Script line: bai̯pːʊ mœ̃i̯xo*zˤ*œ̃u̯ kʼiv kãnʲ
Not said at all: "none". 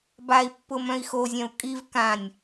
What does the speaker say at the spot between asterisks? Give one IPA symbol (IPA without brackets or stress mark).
zʲ